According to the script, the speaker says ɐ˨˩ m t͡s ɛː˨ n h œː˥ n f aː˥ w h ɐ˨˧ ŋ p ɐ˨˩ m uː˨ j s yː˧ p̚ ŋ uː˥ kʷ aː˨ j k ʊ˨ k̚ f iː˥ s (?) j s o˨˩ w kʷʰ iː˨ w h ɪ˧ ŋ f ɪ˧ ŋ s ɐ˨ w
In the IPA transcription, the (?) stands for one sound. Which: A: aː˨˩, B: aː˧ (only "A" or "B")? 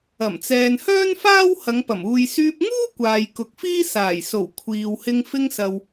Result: A